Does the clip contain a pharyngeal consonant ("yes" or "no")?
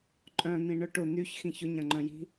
no